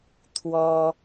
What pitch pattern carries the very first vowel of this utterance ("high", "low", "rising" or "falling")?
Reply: high